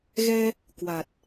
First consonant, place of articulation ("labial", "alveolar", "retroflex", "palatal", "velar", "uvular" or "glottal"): velar